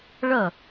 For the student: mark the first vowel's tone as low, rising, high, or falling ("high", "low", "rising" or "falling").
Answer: falling